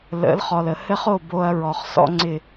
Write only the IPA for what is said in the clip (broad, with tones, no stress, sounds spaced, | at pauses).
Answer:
l ə̰˨˦ l χ ɔ˨ l ə˨ h ɘ˦ χ o˦˨ b o˦ ɐ̯ ɹ ɔ˨ χ s ɔ̰˦ ŋ͡ǀ ɪ˦˨